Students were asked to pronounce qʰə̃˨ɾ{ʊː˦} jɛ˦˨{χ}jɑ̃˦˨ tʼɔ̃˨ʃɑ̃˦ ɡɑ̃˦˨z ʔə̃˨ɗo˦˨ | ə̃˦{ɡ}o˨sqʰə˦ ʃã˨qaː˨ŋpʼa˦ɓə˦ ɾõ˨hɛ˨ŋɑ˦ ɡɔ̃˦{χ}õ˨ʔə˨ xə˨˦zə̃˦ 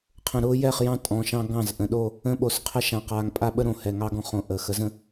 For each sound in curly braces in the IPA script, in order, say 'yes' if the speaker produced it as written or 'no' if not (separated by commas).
yes, yes, no, yes